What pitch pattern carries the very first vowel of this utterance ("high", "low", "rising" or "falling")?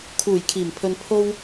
low